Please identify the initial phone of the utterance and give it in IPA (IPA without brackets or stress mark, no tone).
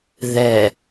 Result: ð